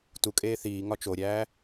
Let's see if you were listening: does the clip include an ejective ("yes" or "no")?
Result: yes